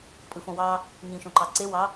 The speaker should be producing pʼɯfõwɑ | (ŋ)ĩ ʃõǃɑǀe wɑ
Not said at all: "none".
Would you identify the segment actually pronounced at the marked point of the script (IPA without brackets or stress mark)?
ŋ